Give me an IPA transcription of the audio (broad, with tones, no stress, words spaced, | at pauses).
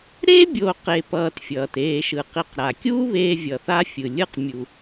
ɾe˥bʲo˨ qe˨pʌː˨tfʲʌː˩t eː˨ʃɯ˩ qi˨qɾa˩kʲuː˦ βeː˦vʲʌ˨θa˥fʲɯ˩ lʲɯ˦qmʲu˨